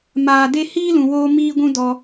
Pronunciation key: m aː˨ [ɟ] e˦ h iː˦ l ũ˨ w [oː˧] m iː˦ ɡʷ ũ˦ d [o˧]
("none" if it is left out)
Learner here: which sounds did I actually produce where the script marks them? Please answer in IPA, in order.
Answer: d, oː˧, ɔ˧

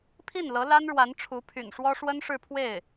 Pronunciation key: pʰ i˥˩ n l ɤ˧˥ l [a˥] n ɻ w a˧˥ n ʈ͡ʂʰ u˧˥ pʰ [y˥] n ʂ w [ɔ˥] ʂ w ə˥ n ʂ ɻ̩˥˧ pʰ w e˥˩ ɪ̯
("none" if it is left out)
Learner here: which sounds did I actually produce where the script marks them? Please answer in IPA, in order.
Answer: a˥, y̰˨˩, ɔ˥

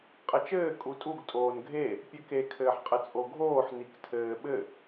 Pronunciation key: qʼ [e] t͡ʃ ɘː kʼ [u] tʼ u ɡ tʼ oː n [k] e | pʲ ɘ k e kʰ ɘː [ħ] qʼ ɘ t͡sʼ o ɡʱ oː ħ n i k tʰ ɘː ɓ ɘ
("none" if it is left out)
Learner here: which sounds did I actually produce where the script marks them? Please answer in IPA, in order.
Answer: ɘ, u, ɡʱ, ħ

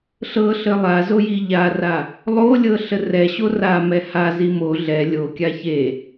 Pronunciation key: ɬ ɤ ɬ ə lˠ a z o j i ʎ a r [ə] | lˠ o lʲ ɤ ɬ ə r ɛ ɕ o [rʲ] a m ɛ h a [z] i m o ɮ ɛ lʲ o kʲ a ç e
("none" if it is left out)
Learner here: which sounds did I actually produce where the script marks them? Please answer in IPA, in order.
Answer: a, r, z

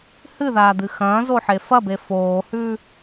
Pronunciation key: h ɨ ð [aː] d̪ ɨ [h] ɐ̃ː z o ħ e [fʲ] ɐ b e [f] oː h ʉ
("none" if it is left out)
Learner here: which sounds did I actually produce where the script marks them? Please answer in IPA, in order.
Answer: aː, x, f, f

